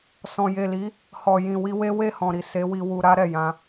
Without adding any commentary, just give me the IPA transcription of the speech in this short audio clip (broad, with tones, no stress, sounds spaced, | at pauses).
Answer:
s ɔ̃˨ j e˨ l i˨˦ | h ɔ˨ j ĩ˨ w i˧ w e˦ w e˦˨ h ɔ̃˨ ɾ i˨ s e˨˦ w i˧ w u˧ ɾ a˦ ɾ ɛ˦˨ j ã˧